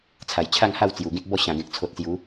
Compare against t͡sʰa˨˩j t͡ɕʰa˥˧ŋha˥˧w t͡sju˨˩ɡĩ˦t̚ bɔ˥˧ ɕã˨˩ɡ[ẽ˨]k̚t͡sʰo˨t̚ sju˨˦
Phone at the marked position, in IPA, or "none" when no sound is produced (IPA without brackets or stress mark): ẽ˨